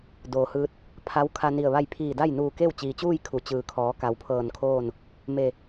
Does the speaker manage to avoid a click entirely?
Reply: yes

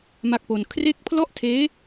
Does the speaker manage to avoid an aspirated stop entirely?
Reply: no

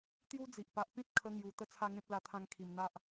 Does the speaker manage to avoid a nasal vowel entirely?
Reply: no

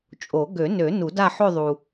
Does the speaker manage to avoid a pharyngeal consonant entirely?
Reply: no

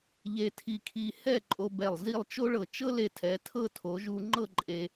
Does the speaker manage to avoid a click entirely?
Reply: no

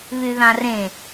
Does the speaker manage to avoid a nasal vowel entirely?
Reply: no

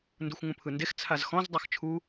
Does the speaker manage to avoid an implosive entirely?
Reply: yes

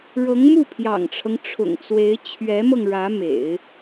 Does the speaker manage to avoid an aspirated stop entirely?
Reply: no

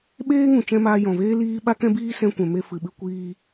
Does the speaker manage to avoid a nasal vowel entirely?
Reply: no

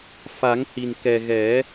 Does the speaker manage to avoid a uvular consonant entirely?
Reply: yes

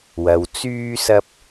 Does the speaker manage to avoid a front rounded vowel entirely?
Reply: no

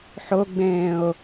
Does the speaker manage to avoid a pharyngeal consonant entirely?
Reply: no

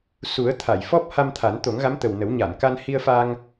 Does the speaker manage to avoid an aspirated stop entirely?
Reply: no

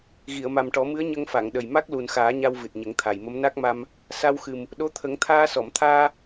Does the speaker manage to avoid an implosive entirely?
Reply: no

